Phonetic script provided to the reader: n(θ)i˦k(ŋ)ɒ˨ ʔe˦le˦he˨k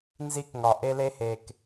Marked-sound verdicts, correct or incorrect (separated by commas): incorrect, correct